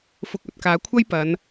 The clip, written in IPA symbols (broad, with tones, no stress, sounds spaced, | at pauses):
f ʊ˨ k̚ ɵ˧ t̚ k aː˨˧ kʷʰ ɐ˥ j p ɐ˨˧ n